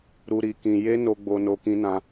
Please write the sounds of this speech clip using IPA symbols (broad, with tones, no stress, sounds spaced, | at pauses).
ɾ u˧ ɾ i˧ k ĩ˧ j e˦ n o˧ ɡ͡b o˧ n o˧ k ĩ˦ n ã˦